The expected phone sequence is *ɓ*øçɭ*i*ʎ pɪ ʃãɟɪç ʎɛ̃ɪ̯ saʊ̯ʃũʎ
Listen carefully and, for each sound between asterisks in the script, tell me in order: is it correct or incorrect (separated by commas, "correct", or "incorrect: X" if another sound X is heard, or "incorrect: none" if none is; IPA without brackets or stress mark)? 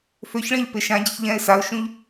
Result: incorrect: f, incorrect: ĩ